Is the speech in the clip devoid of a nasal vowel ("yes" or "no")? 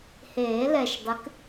yes